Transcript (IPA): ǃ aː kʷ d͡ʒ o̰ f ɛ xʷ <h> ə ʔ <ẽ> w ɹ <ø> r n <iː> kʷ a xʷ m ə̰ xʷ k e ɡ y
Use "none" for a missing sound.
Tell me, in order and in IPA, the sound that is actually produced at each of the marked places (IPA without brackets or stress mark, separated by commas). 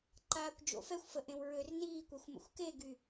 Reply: f, ẽ, ø, iː